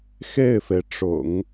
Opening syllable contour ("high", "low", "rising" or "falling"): falling